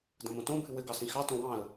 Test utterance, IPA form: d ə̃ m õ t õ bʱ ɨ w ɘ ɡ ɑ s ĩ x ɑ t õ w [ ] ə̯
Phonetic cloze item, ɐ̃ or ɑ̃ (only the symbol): ɑ̃